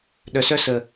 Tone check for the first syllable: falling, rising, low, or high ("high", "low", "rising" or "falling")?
low